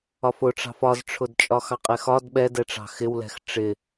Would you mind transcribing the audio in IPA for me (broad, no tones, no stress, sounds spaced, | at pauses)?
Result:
ɒ f ʊ ʈ͡ʂ ɑ̤ f ɒ z ʈ͡ʂʰ ʊ d t͡ʃʼ ɒ x ɑ qʼ ɛ x ɒ d ɓ ɛ d ɛ ʈ͡ʂ ɑ̤ x ɪ w l ɛ̤ x ʈ͡ʂ ɪ